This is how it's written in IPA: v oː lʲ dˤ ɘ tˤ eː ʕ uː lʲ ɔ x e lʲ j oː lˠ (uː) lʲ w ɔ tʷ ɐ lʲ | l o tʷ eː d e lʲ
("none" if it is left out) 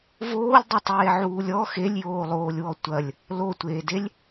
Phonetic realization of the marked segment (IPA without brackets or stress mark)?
oː